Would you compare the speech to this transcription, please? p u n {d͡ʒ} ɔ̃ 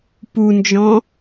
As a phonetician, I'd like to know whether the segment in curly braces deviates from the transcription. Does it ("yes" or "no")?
no